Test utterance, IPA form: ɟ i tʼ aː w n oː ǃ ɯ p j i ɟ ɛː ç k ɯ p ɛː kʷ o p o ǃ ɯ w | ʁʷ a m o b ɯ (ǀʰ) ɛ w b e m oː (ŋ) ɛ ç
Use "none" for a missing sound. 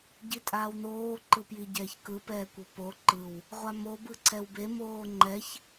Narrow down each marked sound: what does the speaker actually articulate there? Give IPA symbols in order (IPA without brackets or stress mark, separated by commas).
ǀʰ, ŋ͡ǃ